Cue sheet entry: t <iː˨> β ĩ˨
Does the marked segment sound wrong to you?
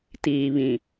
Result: no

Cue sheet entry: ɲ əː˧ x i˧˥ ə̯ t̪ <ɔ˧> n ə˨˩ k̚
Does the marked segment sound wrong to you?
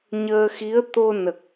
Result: yes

